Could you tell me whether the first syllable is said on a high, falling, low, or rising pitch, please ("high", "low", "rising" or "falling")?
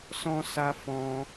high